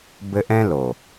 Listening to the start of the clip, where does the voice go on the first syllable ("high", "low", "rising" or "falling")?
high